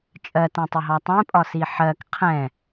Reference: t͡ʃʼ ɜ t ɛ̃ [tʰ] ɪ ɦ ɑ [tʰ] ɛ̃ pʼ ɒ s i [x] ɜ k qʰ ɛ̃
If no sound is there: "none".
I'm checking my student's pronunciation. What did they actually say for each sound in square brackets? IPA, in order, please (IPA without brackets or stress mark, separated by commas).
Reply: tˤ, tˤ, ħ